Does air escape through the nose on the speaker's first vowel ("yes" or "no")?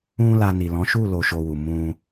yes